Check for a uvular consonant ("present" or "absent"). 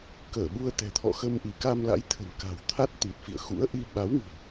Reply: absent